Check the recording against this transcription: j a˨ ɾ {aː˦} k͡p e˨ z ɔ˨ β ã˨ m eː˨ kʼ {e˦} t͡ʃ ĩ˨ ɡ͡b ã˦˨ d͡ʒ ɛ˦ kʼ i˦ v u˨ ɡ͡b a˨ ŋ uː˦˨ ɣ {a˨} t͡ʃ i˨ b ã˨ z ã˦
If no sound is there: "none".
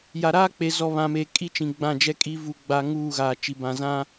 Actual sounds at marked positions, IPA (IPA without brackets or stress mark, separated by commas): aː˦, i˦, aː˨